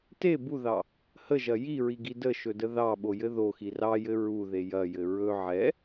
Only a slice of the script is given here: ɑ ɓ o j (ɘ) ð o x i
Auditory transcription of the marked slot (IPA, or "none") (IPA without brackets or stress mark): ɘ